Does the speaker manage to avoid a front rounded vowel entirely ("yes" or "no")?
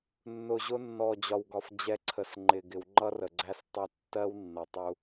yes